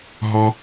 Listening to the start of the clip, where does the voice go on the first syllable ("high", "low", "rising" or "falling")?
high